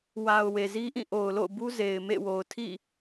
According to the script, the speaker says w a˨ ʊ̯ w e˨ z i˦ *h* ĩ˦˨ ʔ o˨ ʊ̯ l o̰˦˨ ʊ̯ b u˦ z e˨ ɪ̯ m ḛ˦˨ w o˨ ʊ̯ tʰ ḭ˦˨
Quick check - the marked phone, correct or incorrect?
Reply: incorrect